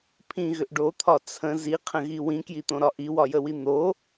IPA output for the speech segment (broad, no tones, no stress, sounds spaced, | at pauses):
pʰ ĩ ɣ ʏ ʔ ɖ o t̪ʰ ɒ t͡sʰ ə̃ z i qʰ ə̃ ɣ i w ĩ k j i t̪ õ ɾ ɒ ʔ i w ɒ j ə w i n̪ o